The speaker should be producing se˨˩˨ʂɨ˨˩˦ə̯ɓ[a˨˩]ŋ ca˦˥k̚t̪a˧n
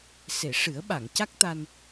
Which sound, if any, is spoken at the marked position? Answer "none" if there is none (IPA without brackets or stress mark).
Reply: a˨˩˨